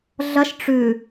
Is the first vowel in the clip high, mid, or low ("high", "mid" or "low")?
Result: low